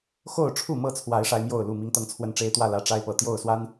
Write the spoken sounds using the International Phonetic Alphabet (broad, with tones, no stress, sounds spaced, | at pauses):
x o˥˨ ʊ̯ ʈ͡ʂʰ u˥˨ m ɤ˥˨ t͡sʰ w a˨˦ ɪ̯ ʂ a˦ ɪ̯ m j o˥˨ ʊ̯ l u˥˨ m i˦ ŋ t̪ ɤ˥˨ ŋ t͡sʰ w ə˦ n ʈ͡ʂ e˦ ɪ̯ t̪ w ä˥˨ l ä˦ ʈ͡ʂ a˦ ɪ̯ p ɤ˨˩ t̪ j o˥˨ ʊ̯ s w a˦ n